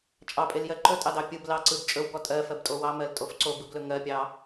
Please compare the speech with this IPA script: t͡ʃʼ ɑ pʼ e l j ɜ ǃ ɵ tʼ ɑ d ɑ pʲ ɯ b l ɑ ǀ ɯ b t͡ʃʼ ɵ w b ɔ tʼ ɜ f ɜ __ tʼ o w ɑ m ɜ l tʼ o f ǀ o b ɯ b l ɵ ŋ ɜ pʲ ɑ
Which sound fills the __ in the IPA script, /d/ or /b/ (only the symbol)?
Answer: b